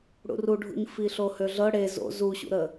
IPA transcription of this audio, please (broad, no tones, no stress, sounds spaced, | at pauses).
ɽ ṵ r u ɖʱ ṵ ɲ f i ɬ o h ø ɮ ɤ ɽ e z o̰ z u ɕ ṵ ɾ ə